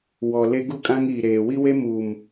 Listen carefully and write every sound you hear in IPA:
w ɔ˨ l e˦ ɡ u˦ kʼ ã˦ ŋ iː˨ ɾ eː˨ w i˦ w e˦ m uː˨ m

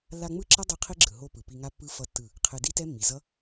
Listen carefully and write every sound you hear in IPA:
lː a˧ ŋ͡m ɯ˦˨ ǁ ʌ˦ dˤ o˦ qʰ i˦ ɡ͡ǁ ɯ˨ ɦ o˦ p ɯ˨ p i˧ ŋ a˦ pː ɯ˦ f ʌ˦ tː ɯ˦˨ | qʰ e˧ d i˦ t ɛ˦ mː i˨ z ʌ˦

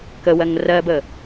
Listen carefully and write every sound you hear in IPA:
k ə w ɜ ŋ r ɜ b ə

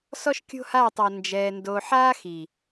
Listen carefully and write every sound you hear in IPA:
s ɔ˦ ʃ kʲ o̤˦ h aː˦˨ tˤ ɔ˨ n d͡ʒ ɛː˨ n d o˨ ħ aː˦ x i˨

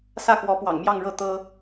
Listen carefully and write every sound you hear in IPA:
s ä˥˩ k w ɔ˧˥ p w ɑ̰˨˩ ŋ m j ɑ˥˧ ŋ ɻ ɤ˥˩ t̪ ɤ˥

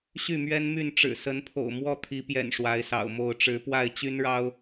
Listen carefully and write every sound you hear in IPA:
ɕ y˥˨ m ɥ ɛ˦ n m y˥˨ n ʈ͡ʂ ɻ̩˨˩ s ə˨˦ n pʰ o̰˨˩ ʊ̯ m w ɔ˥˨ t̪ʰ i˨˦ p j ɛ̰˨˩ n ʂ w a˨˦ ɪ̯ s ɑ̰˨˩ ʊ̯ m o˥˨ ʊ̯ ʈ͡ʂ ɻ̩˨˦ p w a˥˨ ɪ̯ t͡ɕ y˦ n ɻ ɑ˦ ʊ̯

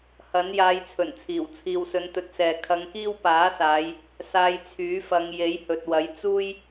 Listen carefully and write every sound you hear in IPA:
h ɐ˨˥ n j aː˧ j t͡sʰ ɵ˨˩ n t͡sʰ iː˨˩ w t͡sʰ iː˨ w s ɵ˨˧ n t̪ ɵ˨˥ t̚ s ɛː˨ kʰ ɐ˧ ŋ k iː˥ w p aː˨˥ s aː˨˧ j | s aː˧ j t͡sʰ yː˨˥ f ɐ˨˧ ŋ j e˨˥ j h ɵ˨ t̚ w ɐ˨˥ j t͡s uː˥ j

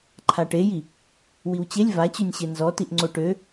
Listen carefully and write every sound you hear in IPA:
ǃʰ a ʈ e j i | w i w t͡ɕ e lʲ v a t͡ɕ y nʲ ɕ e n z ɔ t i ʔ ŋ͡ǀ o ʈ ø

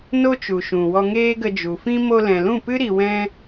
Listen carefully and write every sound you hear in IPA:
n o˦ t͡ʃ u˨ ʃ ũ˨ w ɔ˧ ŋ eː˦ ɡ ə˧ d͡ʒ u˨ f ĩ˦ m o˧ l ɛ̃˨ l ũ˦˨ p ɨ˦ ɾ i˧ w ɛ̃˦

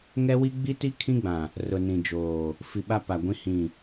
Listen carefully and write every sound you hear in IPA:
ŋ ɛ˦ w i˦ ɡ͡b i˦ t i˦ kʰ ĩ˦ ɡ͡b ã˨ | r ʊ˨ n ĩ˨ d͡ʒ oː˨ | f i˨ ɓ a˦ p a˨ ɡʷ ĩ˦ h ĩ˦˨

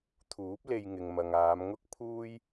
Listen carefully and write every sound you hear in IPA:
t̪ʰ uː˨˥ p̚ l e˧ j ŋ ɪ˨ ŋ m ɐ˨ ŋ aː˨˧ m ŋ ʊ˥ k̚ pʰ uː˥ j

